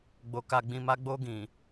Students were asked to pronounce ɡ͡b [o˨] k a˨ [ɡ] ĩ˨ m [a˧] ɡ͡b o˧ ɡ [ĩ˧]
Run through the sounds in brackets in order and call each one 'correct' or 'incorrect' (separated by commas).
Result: correct, incorrect, correct, incorrect